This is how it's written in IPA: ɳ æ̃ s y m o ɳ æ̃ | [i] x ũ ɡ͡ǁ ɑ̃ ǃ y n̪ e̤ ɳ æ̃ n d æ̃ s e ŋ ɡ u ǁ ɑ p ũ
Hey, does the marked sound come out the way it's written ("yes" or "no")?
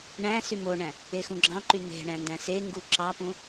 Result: no